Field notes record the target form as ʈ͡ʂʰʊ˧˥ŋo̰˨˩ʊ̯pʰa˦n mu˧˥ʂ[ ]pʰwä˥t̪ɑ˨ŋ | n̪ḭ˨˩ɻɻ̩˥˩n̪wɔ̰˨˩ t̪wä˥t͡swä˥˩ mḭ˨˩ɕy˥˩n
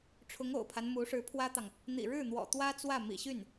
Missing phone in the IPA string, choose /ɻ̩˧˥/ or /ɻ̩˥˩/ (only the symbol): ɻ̩˧˥